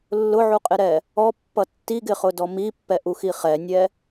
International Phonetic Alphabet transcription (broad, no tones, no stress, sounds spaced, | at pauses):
lː ʊ ʕ u qʼ ɪ ɾ ɛ | ɔ pː ʌ tː i ɡ ɪ χ ʊ d ɔ m i pː ɛ ʔ u x i χ ɛ nʲ ɛ